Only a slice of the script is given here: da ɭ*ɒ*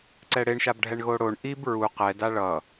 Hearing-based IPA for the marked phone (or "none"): ʌ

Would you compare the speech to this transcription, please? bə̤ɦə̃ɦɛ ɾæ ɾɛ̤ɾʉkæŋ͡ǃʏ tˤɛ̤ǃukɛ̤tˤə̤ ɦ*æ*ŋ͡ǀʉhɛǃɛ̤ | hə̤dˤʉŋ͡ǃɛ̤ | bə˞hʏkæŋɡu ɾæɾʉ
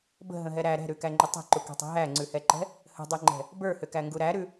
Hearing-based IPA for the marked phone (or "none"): æ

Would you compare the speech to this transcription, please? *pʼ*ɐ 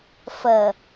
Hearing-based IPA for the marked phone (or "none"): f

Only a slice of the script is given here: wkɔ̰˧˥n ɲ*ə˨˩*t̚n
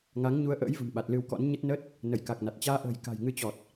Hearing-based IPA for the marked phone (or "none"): ə˦˥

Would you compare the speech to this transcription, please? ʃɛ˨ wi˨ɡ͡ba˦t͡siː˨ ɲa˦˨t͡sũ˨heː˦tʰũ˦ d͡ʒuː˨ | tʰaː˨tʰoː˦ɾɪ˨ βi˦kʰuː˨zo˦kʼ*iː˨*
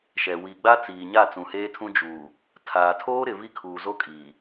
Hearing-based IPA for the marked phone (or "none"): iː˨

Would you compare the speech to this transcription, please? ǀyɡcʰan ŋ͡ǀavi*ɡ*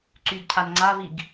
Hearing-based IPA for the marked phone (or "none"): ɡ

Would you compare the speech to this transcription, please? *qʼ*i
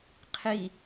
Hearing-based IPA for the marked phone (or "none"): qʰ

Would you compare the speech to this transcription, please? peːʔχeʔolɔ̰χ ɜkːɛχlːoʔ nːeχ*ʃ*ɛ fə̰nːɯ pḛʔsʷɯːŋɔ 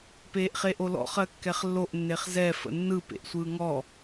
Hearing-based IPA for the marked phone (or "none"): z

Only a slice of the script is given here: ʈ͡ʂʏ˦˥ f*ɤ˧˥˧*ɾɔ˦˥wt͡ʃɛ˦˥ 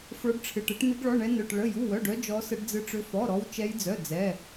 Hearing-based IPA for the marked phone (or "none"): ɔ˧˥˧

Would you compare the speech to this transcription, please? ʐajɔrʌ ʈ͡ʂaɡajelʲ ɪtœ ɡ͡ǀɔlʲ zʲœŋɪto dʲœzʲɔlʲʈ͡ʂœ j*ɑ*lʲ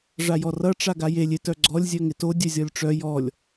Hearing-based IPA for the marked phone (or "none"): ɔ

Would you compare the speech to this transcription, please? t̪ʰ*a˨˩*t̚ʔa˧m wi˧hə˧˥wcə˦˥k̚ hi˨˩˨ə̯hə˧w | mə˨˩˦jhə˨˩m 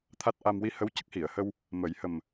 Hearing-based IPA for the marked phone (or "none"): a˦˥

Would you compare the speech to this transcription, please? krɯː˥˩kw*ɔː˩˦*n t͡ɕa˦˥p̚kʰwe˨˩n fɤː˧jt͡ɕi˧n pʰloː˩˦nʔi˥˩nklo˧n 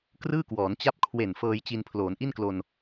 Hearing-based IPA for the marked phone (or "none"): ɔː˩˦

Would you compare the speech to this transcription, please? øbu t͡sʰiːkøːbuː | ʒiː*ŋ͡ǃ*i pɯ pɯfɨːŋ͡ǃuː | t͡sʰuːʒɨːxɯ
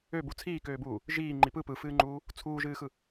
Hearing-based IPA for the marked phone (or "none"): ŋ͡ǃ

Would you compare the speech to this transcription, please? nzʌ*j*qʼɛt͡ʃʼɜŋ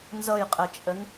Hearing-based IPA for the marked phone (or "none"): j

